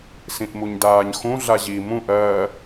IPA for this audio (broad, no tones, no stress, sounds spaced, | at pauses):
s ĩ ʔ m u ɲ d aː ɲ x ũ ɮ a ʑ i m ũ ʔ ɜ